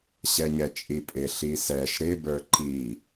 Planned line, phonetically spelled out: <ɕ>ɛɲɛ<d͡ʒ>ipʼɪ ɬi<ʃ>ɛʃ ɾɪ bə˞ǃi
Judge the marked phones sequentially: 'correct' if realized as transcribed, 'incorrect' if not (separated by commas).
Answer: correct, incorrect, incorrect